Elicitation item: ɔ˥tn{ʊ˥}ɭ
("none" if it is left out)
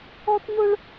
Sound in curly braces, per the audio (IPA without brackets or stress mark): ʊ˥